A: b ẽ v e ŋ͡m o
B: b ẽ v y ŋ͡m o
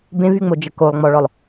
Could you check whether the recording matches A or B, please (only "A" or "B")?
B